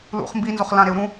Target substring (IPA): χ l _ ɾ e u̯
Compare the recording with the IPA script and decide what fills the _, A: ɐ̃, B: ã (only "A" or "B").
B